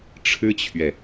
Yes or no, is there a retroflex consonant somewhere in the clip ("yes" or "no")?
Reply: yes